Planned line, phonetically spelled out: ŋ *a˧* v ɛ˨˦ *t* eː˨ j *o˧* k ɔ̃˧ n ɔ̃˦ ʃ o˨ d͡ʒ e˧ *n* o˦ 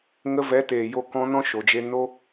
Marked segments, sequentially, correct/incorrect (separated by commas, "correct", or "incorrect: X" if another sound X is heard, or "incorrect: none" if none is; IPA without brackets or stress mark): incorrect: ə˧, correct, correct, correct